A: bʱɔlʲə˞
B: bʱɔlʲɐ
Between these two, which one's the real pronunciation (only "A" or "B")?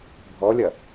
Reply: B